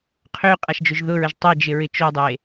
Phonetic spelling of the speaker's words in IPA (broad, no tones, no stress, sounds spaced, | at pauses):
qʰ ø qʼ a ʃ d͡ʒ ʊ ʒ ð ʊ ɹ ə ʒ tˤ ɛ d͡ʒ ɪ ɹ ɪ t͡ʃ o dˤ e